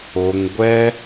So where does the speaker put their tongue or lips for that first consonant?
velum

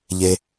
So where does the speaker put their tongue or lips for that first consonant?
palate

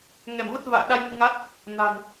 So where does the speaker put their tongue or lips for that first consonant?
velum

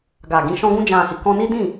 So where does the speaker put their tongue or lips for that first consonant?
velum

